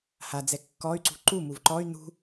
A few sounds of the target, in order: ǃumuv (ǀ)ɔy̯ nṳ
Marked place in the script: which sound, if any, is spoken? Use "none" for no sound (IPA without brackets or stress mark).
ǃ